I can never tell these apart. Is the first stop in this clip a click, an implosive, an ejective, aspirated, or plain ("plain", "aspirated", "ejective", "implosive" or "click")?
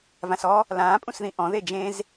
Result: ejective